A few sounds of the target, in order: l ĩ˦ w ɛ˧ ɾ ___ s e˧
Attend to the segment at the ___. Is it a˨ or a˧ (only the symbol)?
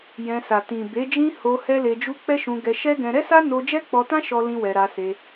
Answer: a˧